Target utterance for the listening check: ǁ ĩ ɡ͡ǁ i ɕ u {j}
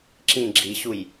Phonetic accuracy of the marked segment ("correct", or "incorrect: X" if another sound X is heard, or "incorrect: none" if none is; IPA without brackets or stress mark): correct